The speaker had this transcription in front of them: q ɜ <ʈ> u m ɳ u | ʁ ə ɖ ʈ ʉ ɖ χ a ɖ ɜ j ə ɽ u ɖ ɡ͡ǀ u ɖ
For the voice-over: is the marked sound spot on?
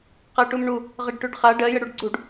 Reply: yes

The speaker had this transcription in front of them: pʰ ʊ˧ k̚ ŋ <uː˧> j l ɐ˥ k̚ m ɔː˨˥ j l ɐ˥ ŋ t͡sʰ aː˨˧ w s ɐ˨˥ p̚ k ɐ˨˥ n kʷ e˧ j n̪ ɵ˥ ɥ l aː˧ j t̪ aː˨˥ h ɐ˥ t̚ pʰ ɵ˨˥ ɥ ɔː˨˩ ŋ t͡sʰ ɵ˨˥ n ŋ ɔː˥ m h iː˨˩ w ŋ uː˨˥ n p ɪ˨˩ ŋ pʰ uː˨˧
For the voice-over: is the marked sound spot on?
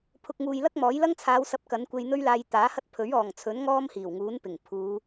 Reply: yes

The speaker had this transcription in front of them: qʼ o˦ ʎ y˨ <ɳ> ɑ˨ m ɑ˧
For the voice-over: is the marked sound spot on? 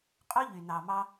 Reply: no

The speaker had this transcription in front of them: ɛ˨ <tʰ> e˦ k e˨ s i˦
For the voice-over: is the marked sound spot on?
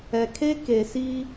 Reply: no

